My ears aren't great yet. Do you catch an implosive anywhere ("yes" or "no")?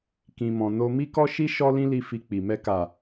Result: no